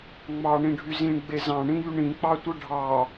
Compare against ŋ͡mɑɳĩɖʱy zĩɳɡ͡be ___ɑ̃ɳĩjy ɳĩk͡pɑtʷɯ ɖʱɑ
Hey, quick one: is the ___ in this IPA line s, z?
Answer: z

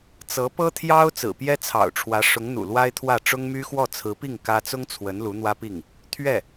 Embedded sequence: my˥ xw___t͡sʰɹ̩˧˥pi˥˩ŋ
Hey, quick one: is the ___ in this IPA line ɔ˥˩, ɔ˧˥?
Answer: ɔ˥˩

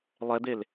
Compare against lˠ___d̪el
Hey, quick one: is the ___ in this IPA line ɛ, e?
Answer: ɛ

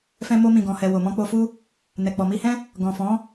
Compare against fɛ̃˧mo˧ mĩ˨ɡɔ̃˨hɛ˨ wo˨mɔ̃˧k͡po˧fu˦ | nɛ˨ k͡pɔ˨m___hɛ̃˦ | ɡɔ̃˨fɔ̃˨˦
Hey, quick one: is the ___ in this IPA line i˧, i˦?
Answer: i˧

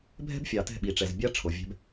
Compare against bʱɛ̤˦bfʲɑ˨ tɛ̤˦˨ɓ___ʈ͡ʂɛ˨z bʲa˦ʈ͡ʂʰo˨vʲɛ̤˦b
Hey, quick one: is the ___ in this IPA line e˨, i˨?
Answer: i˨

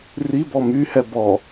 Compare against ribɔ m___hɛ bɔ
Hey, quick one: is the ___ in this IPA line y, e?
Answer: y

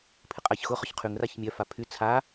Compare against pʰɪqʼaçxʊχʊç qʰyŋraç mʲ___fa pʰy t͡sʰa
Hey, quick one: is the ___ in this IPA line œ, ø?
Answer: œ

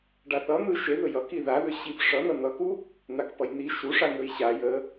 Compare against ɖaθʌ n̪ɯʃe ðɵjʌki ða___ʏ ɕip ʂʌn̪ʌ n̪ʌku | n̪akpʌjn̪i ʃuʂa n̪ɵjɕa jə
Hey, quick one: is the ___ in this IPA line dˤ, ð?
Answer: ð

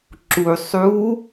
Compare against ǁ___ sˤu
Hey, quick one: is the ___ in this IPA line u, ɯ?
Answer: u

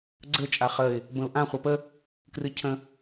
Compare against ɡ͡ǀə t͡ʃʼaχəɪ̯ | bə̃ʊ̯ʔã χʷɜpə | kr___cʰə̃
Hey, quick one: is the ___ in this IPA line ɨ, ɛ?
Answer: ɨ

